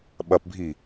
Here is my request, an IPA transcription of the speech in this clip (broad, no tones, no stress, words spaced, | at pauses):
ɓɐpbʱi